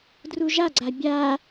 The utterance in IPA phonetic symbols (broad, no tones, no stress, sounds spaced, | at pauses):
d r u ʒ a ɡ͡ǀ a bʲ a